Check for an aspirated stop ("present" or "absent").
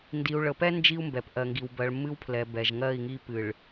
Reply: present